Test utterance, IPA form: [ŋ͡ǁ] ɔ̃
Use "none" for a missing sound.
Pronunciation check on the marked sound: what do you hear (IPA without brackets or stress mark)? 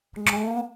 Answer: ŋ͡ǁ